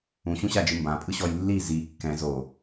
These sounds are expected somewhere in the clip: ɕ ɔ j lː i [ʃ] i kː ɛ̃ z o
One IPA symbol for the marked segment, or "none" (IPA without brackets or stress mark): z